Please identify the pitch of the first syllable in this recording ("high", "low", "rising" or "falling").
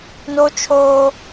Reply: high